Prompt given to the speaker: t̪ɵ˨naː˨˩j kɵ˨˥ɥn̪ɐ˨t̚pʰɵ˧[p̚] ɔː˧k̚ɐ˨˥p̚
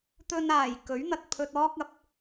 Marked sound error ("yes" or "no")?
yes